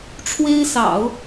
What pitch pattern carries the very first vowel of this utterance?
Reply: high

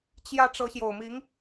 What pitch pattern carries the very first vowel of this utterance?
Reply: high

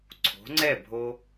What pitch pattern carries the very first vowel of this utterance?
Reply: rising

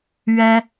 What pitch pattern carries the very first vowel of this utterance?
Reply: high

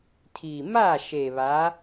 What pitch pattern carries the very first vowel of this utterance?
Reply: low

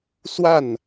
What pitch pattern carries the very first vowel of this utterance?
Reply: falling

